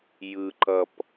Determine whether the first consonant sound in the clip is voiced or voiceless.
voiced